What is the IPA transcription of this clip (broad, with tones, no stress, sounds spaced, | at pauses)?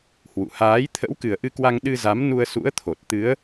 h w ṵ˧˨ h aː˨˦ j t̪ʰ ə̰˧˥ w k ɨ˨˩ ə̯ ʔ ɨ˧ k w a˧ ŋ ɗ ɨ˧ z a˨˦ m n u˧ ə̯ s ṵ˧˥ ə̯ t̪ʰ o˨˩ t̚ t̪ ɨ˨˦ ə̯